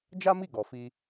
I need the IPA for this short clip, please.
d͡ʒ a˦ m i˦˨ ɡ ɔ˨ f i˧

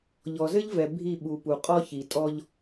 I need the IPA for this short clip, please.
ʎ ɔ˨ z ɘ˦ ʎ v ɛ˨ bʱ i˦˨ ɓ u˨ p u˨ qʼ ɔ˦ ç i˨ tʼ ɔ˦ ʎ

